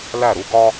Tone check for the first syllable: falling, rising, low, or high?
falling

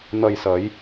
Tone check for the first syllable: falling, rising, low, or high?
low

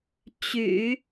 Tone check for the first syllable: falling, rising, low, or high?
low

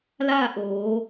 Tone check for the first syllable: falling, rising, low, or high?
falling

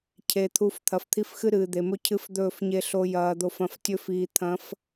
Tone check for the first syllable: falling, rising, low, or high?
low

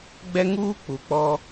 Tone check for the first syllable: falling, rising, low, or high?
high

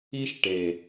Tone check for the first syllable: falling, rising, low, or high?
high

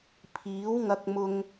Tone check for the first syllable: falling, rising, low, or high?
rising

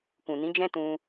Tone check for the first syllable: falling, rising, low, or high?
low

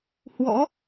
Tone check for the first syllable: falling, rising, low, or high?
rising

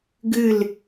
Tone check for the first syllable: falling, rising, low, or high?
falling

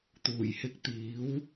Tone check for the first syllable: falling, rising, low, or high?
low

